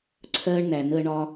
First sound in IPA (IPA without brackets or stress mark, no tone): ǀʰ